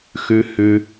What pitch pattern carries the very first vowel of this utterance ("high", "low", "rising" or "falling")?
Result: low